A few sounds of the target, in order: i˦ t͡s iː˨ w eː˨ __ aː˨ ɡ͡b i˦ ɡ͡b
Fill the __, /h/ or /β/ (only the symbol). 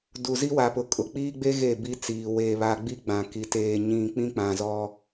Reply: β